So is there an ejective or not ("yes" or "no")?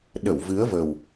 no